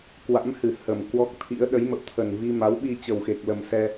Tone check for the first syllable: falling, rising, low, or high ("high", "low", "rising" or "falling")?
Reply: rising